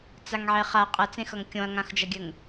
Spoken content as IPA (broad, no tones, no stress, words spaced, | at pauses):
t͡saŋʕeχa qʼʌt͡sẽxʌŋ kʲõɐ̯ŋãxd͡ʒʌɡʲɘŋ